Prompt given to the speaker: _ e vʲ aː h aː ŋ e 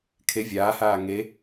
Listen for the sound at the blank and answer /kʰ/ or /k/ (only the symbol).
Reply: kʰ